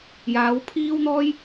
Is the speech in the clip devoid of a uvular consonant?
yes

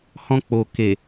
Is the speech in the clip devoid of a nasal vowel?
no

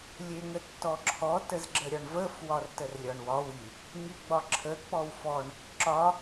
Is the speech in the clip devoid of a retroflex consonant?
no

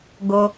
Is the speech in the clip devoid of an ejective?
yes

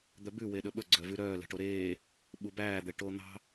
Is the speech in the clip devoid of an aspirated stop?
yes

